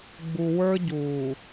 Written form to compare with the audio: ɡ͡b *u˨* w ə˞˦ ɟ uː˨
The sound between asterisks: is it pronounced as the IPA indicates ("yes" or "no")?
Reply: yes